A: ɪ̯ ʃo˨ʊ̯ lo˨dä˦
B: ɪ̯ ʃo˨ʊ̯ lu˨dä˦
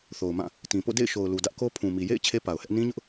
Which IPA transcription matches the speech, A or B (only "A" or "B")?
B